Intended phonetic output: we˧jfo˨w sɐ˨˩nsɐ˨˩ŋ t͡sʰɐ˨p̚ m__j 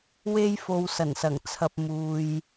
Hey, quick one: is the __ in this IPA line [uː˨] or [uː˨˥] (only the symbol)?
uː˨